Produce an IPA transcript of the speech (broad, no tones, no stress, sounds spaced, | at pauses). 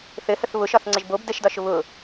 θ ɘ h ə θ β ʊ ʃ ɒ θ ŋ͡ǀ ə ʒ b o b d ə ʃ d ɒ ʃ ʊ β ʊ